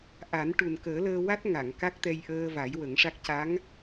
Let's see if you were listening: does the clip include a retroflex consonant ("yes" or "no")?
yes